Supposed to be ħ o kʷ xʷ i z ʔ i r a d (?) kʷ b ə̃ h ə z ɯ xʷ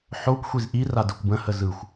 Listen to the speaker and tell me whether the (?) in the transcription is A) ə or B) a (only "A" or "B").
A